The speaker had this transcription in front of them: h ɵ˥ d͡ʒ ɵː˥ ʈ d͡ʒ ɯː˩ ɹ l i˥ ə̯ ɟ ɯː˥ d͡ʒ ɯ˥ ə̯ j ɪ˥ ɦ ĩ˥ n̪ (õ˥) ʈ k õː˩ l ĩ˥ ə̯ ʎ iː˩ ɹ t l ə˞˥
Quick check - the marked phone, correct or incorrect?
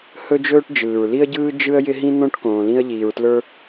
correct